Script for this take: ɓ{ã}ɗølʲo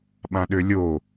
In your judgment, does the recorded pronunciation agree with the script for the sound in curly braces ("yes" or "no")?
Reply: yes